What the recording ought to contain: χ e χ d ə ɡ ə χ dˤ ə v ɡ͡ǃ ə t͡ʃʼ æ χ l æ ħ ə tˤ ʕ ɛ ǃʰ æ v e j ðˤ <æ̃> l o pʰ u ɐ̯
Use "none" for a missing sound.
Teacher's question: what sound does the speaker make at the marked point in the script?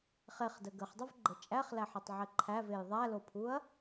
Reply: æ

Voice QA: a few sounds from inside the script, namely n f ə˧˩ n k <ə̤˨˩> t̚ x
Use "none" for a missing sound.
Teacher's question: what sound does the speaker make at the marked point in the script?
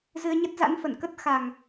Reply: ə˦˥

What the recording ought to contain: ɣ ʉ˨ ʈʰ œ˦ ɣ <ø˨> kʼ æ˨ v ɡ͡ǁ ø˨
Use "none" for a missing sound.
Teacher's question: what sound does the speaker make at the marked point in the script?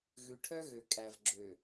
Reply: ø˨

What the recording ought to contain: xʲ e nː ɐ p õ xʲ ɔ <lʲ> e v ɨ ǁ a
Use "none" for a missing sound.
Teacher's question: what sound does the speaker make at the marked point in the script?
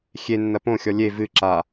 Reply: lʲ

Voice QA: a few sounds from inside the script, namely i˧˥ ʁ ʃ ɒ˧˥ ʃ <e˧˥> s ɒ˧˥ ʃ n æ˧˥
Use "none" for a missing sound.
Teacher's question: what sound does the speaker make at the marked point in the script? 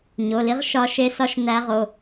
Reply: e˧˥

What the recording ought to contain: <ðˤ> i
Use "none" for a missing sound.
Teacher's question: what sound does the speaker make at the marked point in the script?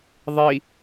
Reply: ðˤ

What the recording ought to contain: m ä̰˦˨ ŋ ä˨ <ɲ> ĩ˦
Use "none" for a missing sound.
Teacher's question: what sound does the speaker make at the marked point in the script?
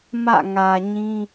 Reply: ɲ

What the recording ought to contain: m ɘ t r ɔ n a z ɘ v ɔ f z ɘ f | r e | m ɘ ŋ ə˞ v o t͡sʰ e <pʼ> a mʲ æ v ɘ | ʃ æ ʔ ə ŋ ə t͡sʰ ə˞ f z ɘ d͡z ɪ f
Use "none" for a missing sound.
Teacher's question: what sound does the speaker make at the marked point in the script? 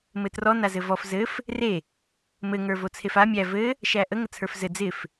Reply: f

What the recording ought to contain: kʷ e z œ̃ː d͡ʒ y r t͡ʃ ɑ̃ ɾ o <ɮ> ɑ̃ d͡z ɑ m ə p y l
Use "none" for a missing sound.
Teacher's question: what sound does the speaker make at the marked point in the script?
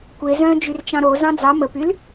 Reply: z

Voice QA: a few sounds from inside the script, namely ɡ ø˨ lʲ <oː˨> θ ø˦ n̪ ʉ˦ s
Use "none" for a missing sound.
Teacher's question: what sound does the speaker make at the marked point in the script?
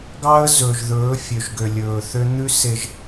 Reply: ɵː˨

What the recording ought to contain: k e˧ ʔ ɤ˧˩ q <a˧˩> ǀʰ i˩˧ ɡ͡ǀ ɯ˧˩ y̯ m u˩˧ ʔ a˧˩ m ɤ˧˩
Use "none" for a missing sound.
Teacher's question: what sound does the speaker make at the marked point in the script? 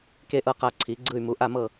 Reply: a˧˩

